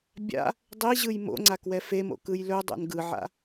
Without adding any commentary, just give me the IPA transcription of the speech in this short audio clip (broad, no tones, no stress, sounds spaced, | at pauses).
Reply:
bʲ a̰ | dˤ i ʑ ɯ j m o̰ ŋ͡ǀ a k w ɛ f e m o̰ k ɯ j l ɵ dˤ o̰ n ɡ ɯ ʕ a̰